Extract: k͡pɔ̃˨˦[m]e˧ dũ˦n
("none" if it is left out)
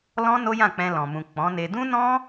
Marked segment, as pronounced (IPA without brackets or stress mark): n